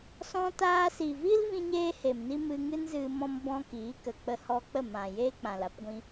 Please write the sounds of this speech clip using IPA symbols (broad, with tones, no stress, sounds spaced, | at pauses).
s ɔ̃˧ t aː˧ s i˨ v i˦ l v ĩ˦ ɲ eː˦ h e˨ m n i˦ m ɨ˧ ŋ ɨ˦ n z ɨ˧ m ɔ̃˧ m b ɔ̃˧ k iː˨˦ k ə˨ k͡p ə˧ h ɔ˧ k͡p ə˦˨ m ã˨ j eː˦ k͡p ã˨ l a˦ p ɡʷ ĩ˧